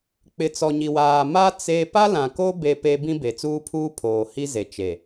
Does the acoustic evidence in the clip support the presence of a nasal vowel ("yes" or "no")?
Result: yes